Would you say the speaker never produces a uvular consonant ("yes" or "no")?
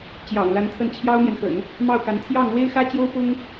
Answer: yes